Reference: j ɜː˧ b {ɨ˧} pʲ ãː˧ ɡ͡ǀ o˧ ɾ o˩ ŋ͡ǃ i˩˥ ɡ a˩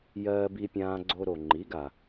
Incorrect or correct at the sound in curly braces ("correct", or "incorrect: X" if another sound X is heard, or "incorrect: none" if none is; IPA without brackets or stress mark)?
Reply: incorrect: i˧